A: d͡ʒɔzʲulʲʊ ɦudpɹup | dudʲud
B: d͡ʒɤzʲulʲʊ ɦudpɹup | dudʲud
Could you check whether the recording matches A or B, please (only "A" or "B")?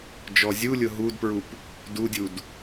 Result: A